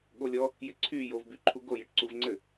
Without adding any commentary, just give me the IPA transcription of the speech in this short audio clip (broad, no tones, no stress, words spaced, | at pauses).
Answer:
ɠolʲɔ | jɪǀʰyjov byǃʰuɡo jɪʈǀuvŋ͡ǀɘ